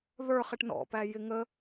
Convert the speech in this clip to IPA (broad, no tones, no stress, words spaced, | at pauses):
ðə˞ χɪʈnɔ̰ pæjɪŋə